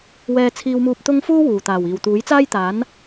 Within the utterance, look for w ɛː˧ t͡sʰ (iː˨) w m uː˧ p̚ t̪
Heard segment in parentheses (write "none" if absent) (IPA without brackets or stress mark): iː˧